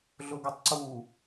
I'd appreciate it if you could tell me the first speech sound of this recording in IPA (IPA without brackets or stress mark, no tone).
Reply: ɮ